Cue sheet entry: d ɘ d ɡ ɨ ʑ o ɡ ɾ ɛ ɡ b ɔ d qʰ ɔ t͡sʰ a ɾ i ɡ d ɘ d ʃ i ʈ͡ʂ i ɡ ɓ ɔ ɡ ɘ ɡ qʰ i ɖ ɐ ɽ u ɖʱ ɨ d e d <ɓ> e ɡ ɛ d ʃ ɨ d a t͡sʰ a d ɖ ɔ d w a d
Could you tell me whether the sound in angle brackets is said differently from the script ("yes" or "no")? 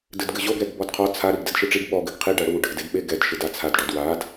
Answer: no